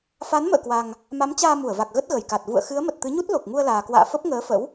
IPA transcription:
f a˨˦ n m ə̰ː˧˨ k w a˨˩ ŋ | m a˨˦ m t͡ɕ aː˧ m u˧˩ ə̯ v a˨˩ k̚ ɣ ə˦˥ t̚ ɣ ə˧˩ j k a˨˩ t̚ v ṵ˧˨ ə̯ x ɨ˨˦ ə̯ m ə˨˩ t̚ t̪ ɨ˨˦ ɲ u˦˥ t̚ l o˨˩ k̚ ŋ u˧ ə̯ l aː˨˩ k w a̰ː˧˨ f ə˦˥ p̚ ŋ əː˨˦ f ə̰˧˥ w

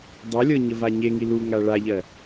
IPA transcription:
dˤ ɤ lʲ ɤ ɲ ə v a ɲ e ŋ i l u ŋ a ɭ a ʎ ɜ

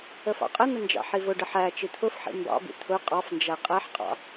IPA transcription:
ə f ɑ̰ qʼ ə n̪ ə n d͡ʒ ɑ̰ ħ i v ʊ ɖ ə ħ æ t͡ʃ i t̪ʰ ʊ f ħ ḭ m b ɑ̰ b ḭ t̪ʰ ʊ qʼ ɑ f n d͡ʒ æ qʼ æ ħ qʼ ɑ̰

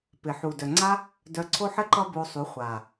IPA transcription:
p ɪ˨ ħ u˨ d œ˨ ŋ͡ǀ a˦ | d œ˧ ǀʰ o˦ ħ ɘ˦ ǃ ʌ˦ b o˧ sˤ u˨˦ χʷ a˨

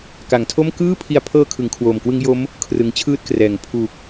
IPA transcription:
k a˩˦ ŋ tʰ o˥˩ m k ɯː˥˩ pʰ i˧ a̯ pʰ ɤː˦˥ kʰ ɯ˩˦ ŋ kʰ w oː˨˩ m k w ɯ˦˥ ŋ j o˦˥ m | kʰ r ɯ˩˦ ŋ t͡ɕʰ ɯː˥˩ t̚ k r ɛː˩˦ ŋ pʰ u˨˩ k̚

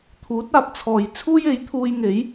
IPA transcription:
t̪ʰ uː˨˥ t̚ aː˧ p̚ t͡sʰ ɔː˨ j t͡sʰ uː˥ j e˨˥ j t̪ʰ uː˧ j ŋ e˨˥ j

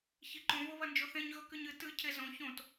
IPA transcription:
ç i ǃ õ v o β ɐ n d͡ʒ o θ ẽ ɲ ɣ ɵ k ɨ ɲ ɨ t ɨ cʰ e z õ ç õ t

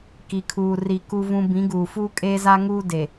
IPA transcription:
k i˨ kʰ uː˨ r i˨ k u˦ v ũ˦ b ĩ˨˦ ɡ uː˨ f uː˦ kʼ eː˦ z a˦ ŋ uː˦ d e˨

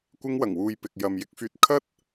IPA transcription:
kʷ ɪ˧ ŋ w ɐ˨˩ ŋ w uː˨ j p ɪ˨ k̚ j ɐ˨ m j ɪ˧ k̚ f yː˧ t̚ kʰ ɐ˥ t̚

